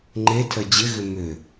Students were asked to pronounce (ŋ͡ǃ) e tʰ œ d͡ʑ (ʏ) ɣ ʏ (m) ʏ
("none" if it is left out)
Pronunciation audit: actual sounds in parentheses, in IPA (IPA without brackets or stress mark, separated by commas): ŋ͡ǃ, ɪ, m